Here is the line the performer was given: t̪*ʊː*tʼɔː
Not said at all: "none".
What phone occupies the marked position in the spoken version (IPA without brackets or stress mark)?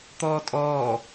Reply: ɔː